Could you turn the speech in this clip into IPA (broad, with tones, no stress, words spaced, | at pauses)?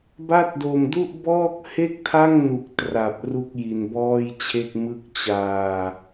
ba˥˩t̚do˧mdu˥˩ʔ bɔː˥˩k̚he˥˩k̚tʰa˥˩ŋ nu˨˩k̚tra˨˩p̚ ru˥˩k̚ji˧nbɔː˥˩jt͡ɕʰe˥˩k̚ mɯ˦˥k̚t͡ɕaː˧